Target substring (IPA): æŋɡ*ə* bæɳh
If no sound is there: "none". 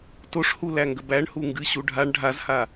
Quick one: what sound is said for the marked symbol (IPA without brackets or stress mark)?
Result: ə